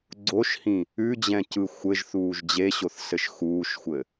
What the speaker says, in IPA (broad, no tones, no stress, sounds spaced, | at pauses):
ɡ͡ǀ o ʃ h ĩ | ʉ d͡ʑ ɛ̃ c ɯ xʷ ɘ ʒ θ uː ʒ d͡ʑ e ɕ o θ s ɘ ʃ x uː ʃ xʷ ɘ